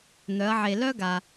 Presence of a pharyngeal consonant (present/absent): present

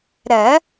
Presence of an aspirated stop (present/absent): absent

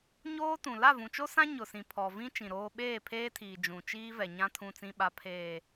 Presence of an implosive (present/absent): present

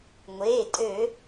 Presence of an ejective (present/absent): present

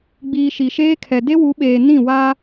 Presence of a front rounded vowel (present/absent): absent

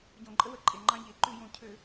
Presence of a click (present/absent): present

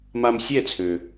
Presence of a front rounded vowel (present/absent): present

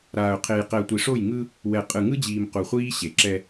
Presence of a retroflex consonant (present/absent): present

